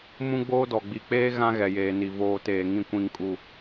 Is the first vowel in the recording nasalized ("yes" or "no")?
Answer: yes